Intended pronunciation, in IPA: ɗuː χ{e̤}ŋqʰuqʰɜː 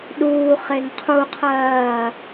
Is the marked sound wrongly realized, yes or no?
yes